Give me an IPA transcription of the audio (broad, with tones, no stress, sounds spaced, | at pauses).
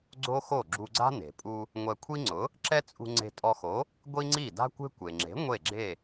ɡ͡ǀ o˥ x o˥˩ ɡ͡ǁ u˧ ɡ͡ǀ a̤˥ n e̤˩ pʼ u˧ | ŋʷ ɛ˧ kʷʰ i˥ ŋ͡ǀ ʊ˩˥ | ǁ ɛ˥ t͡sʼ ṳ˧ ŋ͡ǀ e̤˧ tʼ ɔ˧ x o˩˥ | ɡʷ i˥ ŋ͡ǀ i˥˩ d a̤˥ kʷ e̤˥ kʷ e˩ ŋ͡ǁ e̤˩˥ ŋʷ e˥˩ ɡ͡ǁ e˥˩